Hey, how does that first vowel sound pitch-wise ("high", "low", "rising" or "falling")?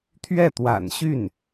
falling